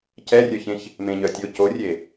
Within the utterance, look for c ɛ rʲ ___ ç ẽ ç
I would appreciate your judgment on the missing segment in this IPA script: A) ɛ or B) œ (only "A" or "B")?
B